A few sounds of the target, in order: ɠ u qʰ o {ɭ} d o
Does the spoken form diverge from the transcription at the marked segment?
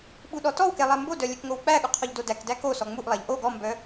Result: yes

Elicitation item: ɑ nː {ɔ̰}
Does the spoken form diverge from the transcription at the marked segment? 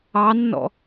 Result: no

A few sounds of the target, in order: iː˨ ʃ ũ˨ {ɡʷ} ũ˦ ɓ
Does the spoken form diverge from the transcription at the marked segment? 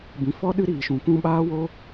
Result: yes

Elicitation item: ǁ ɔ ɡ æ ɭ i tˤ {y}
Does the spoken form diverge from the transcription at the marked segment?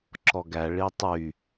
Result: no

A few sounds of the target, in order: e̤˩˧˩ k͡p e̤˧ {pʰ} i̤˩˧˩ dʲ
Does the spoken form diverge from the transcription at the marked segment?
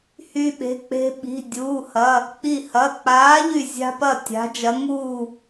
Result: yes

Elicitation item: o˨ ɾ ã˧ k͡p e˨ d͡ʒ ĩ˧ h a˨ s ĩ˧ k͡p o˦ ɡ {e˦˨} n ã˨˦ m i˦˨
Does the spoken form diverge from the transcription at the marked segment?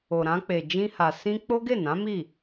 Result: no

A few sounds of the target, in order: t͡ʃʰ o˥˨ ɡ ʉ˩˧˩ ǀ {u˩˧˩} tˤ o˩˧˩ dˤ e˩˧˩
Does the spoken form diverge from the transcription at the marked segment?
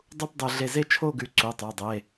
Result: no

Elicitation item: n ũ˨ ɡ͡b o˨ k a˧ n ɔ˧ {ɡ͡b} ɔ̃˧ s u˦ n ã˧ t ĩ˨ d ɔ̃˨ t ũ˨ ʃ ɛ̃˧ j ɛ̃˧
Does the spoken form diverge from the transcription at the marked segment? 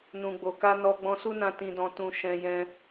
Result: no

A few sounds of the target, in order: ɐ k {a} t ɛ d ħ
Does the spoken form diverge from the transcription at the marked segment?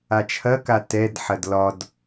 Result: no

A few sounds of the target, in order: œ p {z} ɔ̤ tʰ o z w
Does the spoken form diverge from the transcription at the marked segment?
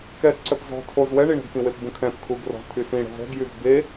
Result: no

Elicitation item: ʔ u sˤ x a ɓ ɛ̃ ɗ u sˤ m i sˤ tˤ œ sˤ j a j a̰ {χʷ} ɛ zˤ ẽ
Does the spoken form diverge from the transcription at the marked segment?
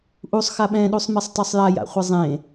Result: no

